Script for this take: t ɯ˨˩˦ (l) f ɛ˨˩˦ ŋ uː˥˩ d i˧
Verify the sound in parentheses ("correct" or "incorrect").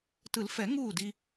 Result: correct